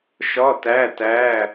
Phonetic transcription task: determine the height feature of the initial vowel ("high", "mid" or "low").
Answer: low